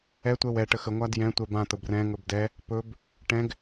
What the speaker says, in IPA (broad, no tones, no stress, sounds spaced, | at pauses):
ɛ tʷ ɛ w ɛ ʈ ə x ə ŋʷ a d j ɛ̃ tʷ ɛ b ã t̪ ə b r ɛ̃ ŋ ɵ b d ɛ | p ɵ b | ʈ ɛ̃ ɡ